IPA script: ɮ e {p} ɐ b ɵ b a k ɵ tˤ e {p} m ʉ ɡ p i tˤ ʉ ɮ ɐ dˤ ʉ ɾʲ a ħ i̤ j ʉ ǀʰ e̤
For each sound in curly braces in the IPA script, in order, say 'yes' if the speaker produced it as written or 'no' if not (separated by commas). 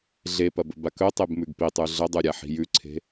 yes, no